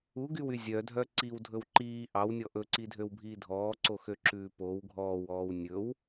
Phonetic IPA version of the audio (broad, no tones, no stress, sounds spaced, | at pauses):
u ɡ y w y zʲ œ dʱ œ ǀ i w dʱ ɵ w ǃ iː ʔ ɑ w nʲ ɔ ʔ ɵ ǀ i dʱ ø w bʱ iː dʱ ɔː ǀ o x ø ǁ ʉː p o w ɡʱ ɔː w ɔː w nʲ ɵ w